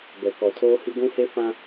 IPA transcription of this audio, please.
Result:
b ɛ˨ k ɔ˨ tʰ oː˦ h i˦ ɡʷ ũ˦ h e˦ f ã˦

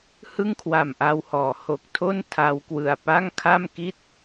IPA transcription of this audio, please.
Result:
h ɯ˥˩ ŋ kʰ w a˨˩ m ʔ a˧ w h ɔː˩˦ h o˨˩ k̚ tʰ o˥˩ n tʰ a˧ w k w ɯ˨˩ a̯ p a˥˩ ŋ kʰ a˥˩ m k i˥˩ t̚

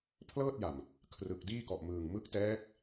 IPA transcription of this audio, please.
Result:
pʰ l ɤː˥˩ t̚ j a˨˩ m | kʰ r ɯ˨˩ k̚ d iː˥˩ k ɔ˨˩ ʔ m ɯː˨˩ ŋ m ɯ˦˥ k̚ t ɛː˦˥ k̚

